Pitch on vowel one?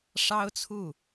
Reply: high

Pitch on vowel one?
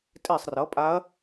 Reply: falling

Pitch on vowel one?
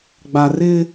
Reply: low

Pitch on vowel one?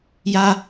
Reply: high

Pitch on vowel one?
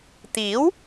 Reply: rising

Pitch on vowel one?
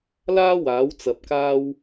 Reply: high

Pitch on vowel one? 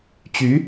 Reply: rising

